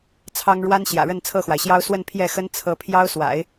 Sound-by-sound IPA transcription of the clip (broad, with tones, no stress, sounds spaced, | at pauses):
t͡sʰ ɑ˥ ŋ ɻ w a˥ n ɕ j ä̰˨˩ ɻ ə˥˧ n t͡sʰ ɤ˥˩ x w a˩ ɪ̯ ɕ j ɑ˥ ʊ̯ s w ə˥˧ n pʰ j ɛ˥˩ x ə˥ n t͡sʰ ɤ˧˥ pʰ j ɑ˥ ʊ̯ s w a̰˨˩˦ ɪ̯